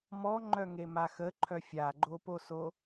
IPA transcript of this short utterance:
mɔŋ͡ǃœŋema xəǃʰœ fʲaɡ͡ǃoposo

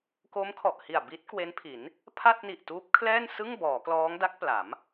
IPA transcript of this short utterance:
ko˦˥mkʰɔ˨˩ʔhi˨˩a̯ bi˦˥t̚kwe˦˥npʰi˩˦n | pʰa˥˩t̚ni˨˩ʔtuː˦˥p̚kʰlɛː˥˩n sɯ˥˩ŋbɔː˩˦ klɔː˦˥ŋda˦˥k̚pla˩˦m

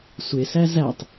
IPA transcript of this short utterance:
sʷesæ zætˤ

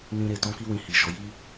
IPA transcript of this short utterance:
nĩ˧ɾe˨ tɔ̃˧ki˧ wĩ˧hi˨ʃɔ˨˦ ji˦

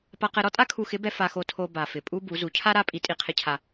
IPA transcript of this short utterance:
pa˧qɛ˧ɾɔ˥tʼa˥ kʰu˧xɪ˧˥bɛ˧ fa˧xo˧tʰo˧ ba˩fɪ˩pʼu˧ bu˩˧zu˩˧cʰa˥ ɾa˥ pʼi˧˥tʼi˧˥qʰɪ˧˥cʰa˧

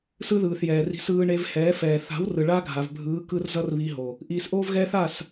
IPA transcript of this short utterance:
sɯ˦ðɯː˨θjɛː˨ri̤˧s ɯː˧ɳe˧v hɛː˨˦fɛː˨ θa̤˨˦w rɯ˨ɭaː˦ɡʱa˨v bʱɯː˨˦kɯ˧r zʌ˦rβi˧ɦo˨ | ʔiː˨sʔoː˦vɣɛː˦θ a˦˨s

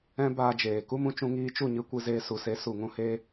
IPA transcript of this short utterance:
ɛ̃˦ baː˧d͡ʒeː˨ ku˦mũ˧t͡ʃũ˧ ŋiː˧t͡ʃu˦˨ɲɨ˧ kʷɨ˧zeː˧su˨ se˨˦su˨ŋũ˧heː˧

